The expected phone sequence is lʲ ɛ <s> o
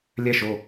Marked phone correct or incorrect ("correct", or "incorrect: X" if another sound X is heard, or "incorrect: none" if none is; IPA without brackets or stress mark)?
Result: incorrect: ʃ